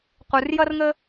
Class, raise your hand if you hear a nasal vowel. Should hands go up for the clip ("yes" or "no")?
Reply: no